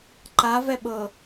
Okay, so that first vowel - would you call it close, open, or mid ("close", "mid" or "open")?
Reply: open